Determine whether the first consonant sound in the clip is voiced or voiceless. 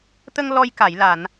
voiceless